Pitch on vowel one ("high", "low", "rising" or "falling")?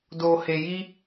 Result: low